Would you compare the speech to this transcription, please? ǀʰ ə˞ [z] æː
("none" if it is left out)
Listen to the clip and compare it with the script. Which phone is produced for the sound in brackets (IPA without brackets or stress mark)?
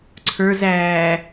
z